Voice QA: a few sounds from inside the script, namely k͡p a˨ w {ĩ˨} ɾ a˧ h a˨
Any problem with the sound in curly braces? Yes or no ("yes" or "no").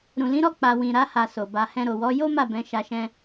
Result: no